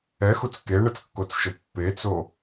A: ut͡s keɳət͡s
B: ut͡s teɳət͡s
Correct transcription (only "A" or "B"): A